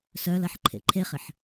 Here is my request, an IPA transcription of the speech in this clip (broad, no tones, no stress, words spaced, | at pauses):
sœlɐħ ǃʰḛǃʰeχɪħ